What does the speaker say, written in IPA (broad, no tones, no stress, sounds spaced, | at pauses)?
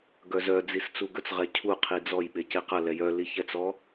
ɡ œ z œ d͡z i s t͡s u ɡ ɵ t͡s ʁ ɛ cʰ u qʰ i d͡z ɔ j ɓ e c e q ɐ l ɛ j œ l i ç ɛ t͡s ɔ